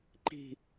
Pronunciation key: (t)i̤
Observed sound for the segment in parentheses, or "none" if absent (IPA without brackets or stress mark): ǃ